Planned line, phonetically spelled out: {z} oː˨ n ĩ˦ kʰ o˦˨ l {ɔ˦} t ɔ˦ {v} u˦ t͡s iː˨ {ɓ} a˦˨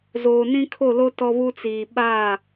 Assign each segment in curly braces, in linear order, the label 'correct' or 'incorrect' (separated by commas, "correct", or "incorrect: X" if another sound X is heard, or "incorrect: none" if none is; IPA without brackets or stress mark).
correct, incorrect: o˦, incorrect: β, correct